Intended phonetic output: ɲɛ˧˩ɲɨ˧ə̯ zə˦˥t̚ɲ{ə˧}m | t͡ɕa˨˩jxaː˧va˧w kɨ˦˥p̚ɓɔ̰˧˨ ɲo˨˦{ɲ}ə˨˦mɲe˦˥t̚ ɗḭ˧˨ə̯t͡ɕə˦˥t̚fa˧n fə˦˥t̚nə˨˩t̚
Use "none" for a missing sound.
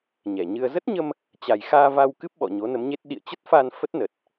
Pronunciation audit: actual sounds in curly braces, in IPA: ə˧, n

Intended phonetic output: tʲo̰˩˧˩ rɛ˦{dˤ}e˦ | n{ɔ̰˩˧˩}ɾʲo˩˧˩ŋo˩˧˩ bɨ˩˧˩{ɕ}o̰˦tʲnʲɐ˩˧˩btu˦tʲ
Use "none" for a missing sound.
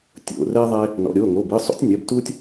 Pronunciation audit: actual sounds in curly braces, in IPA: ðˤ, ɔ̰˩˧˩, sˤ

